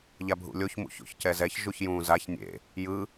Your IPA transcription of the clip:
ʎ a bʱ ṵ lʲ o ç m ṵ ç o̰ ç c ɛ z ɛ ç ʒ u ç j ũː z a ç nʲ ḛ | j ɯ

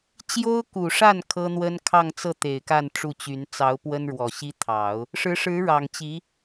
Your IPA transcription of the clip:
t͡ɕ j o˥ ʊ̯ k u˨˩ ʂ a˥˩ n kʰ ɤ˥ n̪ w ə˥ n kʰ ɑ˥˧ ŋ t͡s ɤ˥˩ t̪ e˨˩ ɪ̯ k a˥˧ n ʈ͡ʂ u˥˩ t͡ɕ y˧˥ n t͡s ɑ˧˥ ʊ̯ p w ə˥ n ɻ w ɔ˨˩ ɕ i˥ t̪ʰ ɑ˨˩˦ ʊ̯ | ʂ ɻ̩˧˥ ʂ ɻ̩˧˥ ɻ ɑ˨˩ ŋ t͡ɕ i˧˥

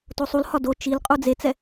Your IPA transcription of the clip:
t o sˤ u l h ɒ d o t͡ʃ i l qʼ u d͡z e t͡s ɛ

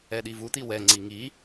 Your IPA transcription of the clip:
ɛ ɗ i v u t̪ i w ɛ ŋ͡ǀ i ŋ i

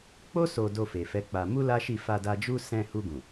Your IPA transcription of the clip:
k͡p o˦ s o˧ d o˧ f e˨ f ɛ˨˦ k͡p a˧ m u˦ l a˦ ʃ i˦˨ f a˧ d a˧ d͡ʒ u˦ s ɛ̃˧ h u˧ ɡ ũ˨

